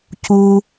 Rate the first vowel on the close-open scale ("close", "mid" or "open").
close